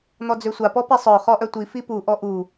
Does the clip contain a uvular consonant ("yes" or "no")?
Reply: yes